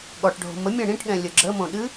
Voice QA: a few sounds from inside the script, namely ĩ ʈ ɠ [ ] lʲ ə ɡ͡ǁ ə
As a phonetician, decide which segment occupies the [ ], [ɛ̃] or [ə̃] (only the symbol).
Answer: ɛ̃